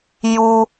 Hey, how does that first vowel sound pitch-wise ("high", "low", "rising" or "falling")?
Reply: low